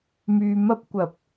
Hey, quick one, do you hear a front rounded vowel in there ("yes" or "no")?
yes